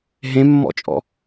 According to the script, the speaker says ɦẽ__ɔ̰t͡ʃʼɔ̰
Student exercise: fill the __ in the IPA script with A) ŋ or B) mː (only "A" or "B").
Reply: B